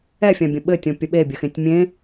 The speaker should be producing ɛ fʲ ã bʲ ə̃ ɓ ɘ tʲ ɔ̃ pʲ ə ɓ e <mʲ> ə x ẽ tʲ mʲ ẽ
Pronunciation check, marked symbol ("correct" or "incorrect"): incorrect